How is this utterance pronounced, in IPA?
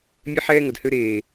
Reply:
mʲe˦ ħɛː˦ŋə˨d hø˦ ɾeː˨

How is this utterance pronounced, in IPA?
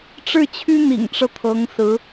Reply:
ʈ͡ʂɻ̩˥˩t͡ɕʰy˥ n̪ḭ˨˩ŋʈ͡ʂɤ˦ t̪ʰɤ˧˥ŋsɹ̩˧˥

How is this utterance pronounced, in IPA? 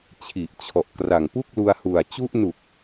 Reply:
t͡ɕʰi˨˩ʔt͡ɕʰɔ˨˩ʔkra˨˩ŋ pu˥˩k̚lu˧a̯hu˨˩a̯ t͡ɕu˦˥ʔnu˨˩k̚

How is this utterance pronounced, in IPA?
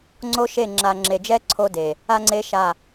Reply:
ŋ͡ǀo˦ʃe˦˨ ŋ͡ǁa˨ŋ͡ǁe˨d͡ʒɛ˦ ǀʰo˦de˨ | a˦ŋ͡ǀe˦ʃa˦˨

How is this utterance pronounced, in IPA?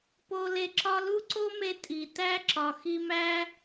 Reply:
po˧ le˧ǁɒ˦ lu˦ǀo˦me˧ tʼi˨ tæ˦ǁɒ˨ xi˧mæ˦

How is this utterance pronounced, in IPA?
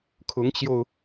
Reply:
kʰʊ˧˥ŋt͡ɕjo˧ʊ̯

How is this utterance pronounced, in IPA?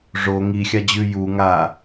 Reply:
ʐo ŋi xʲad͡ʑʉ ju ŋa

